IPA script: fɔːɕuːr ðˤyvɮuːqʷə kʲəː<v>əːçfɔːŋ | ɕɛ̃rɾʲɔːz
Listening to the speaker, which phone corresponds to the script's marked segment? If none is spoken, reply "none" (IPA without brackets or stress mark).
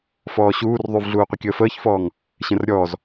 f